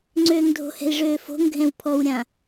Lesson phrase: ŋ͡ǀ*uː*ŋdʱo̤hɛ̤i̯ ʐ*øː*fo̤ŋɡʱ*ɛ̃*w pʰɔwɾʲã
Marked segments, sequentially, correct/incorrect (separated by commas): incorrect, correct, correct